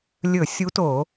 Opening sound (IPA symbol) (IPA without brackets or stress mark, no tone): lʲ